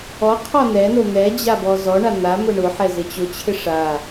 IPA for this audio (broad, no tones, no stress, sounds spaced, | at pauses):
ɔ qʰ ɔ n ɛ n o n̪ ɛ d͡ʑ a b ɔ z ɔ ɳ a n̪ a m ʊ ɳ ʊ ħ ɛ z ɪ t͡ɕ ʊ t͡ɕʰ ɪ ʂ a